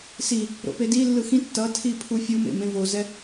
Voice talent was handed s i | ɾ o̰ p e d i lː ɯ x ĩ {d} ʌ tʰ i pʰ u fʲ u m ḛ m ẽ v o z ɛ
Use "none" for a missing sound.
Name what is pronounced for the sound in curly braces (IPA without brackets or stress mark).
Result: tː